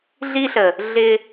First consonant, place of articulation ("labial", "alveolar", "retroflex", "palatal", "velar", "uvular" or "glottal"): alveolar